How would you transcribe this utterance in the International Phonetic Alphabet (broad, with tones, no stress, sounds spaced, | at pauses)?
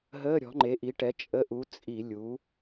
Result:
ɦ əː˧˥˧ ɾʲ ɔ̤˨˥ ŋ͡ǃ e˨˥ ʔ i˨˥ ʈ ɛ˨˥ t͡ʃʼ ə˧˥˧ ʔ u˨˥ t͡sʼ i˧˩˧ lʲ u˨˥